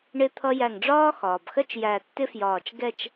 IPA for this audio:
ɳ ɪ˧ t̪ʰ ʌ˧ j æ˧˩ ŋ ɖ͡ʐ ɒː˥ x ɒː˩ b x ɜ˥ t͡ʃ j æ˧˩ tː ɪ˥ f j ɒː˧˩ t͡ʃ ɡ ɛ˥˧ t͡ʃ

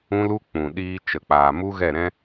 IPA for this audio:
ũ˦ l u˦ k͡p ũ˨ ɗ iː˧ t͡ʃ ə˨ k͡p aː˨ m u˦ ɣ ɛ˦˨ ɾ ɛ̃˦

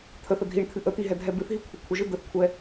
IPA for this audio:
t̪ʰ ə θ ə dʱ i ɳ t̪ʰ ɨ ʔ ə t̪ i ɦ ɛ dʱ ɛ b ɨ θ ɦ i kʷʰ ə kʷʰ ə ʒ ɨ d̪ ə θ kʷʰ ɛ

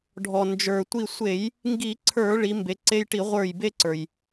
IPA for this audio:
ɖʱ ɔ˩ n d͡ʒ ə˞˩ tʷ i˧˩ sʷ e˧˩˧ j | ŋ ɡ i˧˩˧ ǀʰ ə˞˧˩˧ ɭ i˩˧ m b e˩˧ ǀ e˧ j ʈ i˧˩˧ ʁʷ ə˞˧˩ j b e˧ ǀ ə˞˩ j

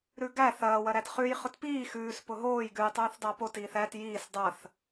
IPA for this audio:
ɾ ʉ ɡ æ θ ɐː w ɐ ɾ æ t χ ʉ j χ ʊ t p iː x ʉː s p ʊ ɦ oː j ɡ ʉ j tˤ ʉː θ dˤ ɐː p o t iː θ æ t j iː s dˤ ɐ θ

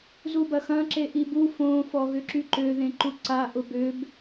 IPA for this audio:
z u b ɐ x ɐ̃ ǁ e ʔ i b u f õ f ɔ ɣ ʏ ǁ y ǃ ø ð ẽ ǃ u ǀ a ʔ ʊ b ø b

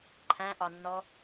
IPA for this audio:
ǃʰ æ̃ ʔ ɑ nː ɔ

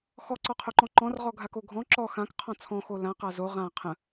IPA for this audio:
x ɔ ǀ ɔ qʰ œ ǃ ɔ̃ ǃ ɔ̃ r ʁ ɔ ɡʱ a k o ɡʱ ɔ̃ ǁ ɔ x ã k qʰ ɔ̃ t͡sʰ ɔ̃ x o l ã q a z o ʁ ã qʰ ə̃

